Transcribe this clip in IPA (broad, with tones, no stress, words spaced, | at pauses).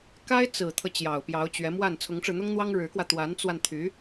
ka˥ɪ̯ t͡sɹ̩˨˩t̪ʰɤ˦ t͡ɕjɑ˨˩ʊ̯pjɑ˧˥ʊ̯t͡ɕɥɛ˧˥mwa˥˩n t͡sʰʊ˧˥ŋʈ͡ʂɻ̩˧n̪ʊ˥ŋn̪wɑ˥ŋ ɻɻ̩˧˥kwä˧ t̪wa˧˥nt͡swa˧n t̪ʰy˧˥